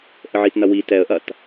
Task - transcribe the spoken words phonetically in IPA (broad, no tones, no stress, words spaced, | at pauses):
ʔəʕitnɐwi tɛə̯ʔɐt